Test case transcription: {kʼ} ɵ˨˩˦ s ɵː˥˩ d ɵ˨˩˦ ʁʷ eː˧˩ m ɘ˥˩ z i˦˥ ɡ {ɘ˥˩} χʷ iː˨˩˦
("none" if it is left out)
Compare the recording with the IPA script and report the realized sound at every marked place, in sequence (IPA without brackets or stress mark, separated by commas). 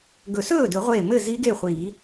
ɡ, e˥˩